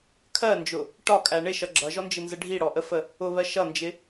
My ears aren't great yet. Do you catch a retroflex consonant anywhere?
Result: yes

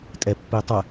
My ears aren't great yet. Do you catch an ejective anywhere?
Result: yes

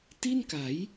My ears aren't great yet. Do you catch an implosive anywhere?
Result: no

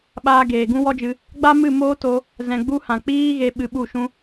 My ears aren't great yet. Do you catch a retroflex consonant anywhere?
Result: no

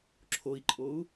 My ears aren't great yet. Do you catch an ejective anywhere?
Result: yes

